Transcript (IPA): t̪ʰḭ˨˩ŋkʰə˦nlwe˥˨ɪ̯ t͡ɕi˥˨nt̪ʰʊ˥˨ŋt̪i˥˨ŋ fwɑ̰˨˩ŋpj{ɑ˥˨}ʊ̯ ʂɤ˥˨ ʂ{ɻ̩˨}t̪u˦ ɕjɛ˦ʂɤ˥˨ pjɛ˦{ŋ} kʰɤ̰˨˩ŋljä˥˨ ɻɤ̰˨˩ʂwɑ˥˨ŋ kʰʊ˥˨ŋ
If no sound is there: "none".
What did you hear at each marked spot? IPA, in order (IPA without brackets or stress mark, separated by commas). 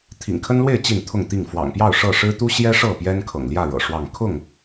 ɑ˥˨, ɻ̩˦, n